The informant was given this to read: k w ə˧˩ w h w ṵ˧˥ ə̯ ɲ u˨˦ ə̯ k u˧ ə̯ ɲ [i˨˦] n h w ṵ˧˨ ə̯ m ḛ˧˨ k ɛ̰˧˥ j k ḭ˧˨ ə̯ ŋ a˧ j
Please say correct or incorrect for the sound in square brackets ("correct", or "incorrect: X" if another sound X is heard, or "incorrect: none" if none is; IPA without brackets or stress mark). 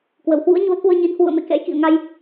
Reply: correct